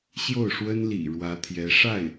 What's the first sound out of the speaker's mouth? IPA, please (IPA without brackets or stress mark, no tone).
ɕ